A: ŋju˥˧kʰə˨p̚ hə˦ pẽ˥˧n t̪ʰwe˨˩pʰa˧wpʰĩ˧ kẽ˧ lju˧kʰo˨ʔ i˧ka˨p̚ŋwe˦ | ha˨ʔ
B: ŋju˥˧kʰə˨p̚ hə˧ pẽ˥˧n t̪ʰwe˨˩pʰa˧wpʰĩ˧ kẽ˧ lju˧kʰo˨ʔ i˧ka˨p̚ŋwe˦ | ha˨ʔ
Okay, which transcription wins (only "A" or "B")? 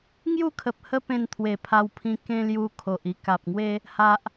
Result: A